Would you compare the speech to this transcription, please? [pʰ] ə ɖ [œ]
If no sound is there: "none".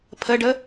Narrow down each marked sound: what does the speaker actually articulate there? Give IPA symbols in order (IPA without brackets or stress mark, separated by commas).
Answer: pʰ, ə